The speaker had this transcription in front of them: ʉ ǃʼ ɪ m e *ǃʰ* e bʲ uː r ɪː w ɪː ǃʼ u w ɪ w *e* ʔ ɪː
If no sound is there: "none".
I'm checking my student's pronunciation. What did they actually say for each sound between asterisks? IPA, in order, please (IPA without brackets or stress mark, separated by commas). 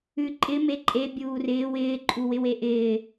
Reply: ǃʼ, e